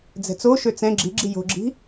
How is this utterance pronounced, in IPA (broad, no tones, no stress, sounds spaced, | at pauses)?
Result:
d͡z ɛ̤ t͡s o ʃ ø t͡s ɛ̃ ɡ͡ǁ i ɡ͡ǁ i j o̤ ɡ͡ǁ i̤